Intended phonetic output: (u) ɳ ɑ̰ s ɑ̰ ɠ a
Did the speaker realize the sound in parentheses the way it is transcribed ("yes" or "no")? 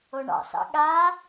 no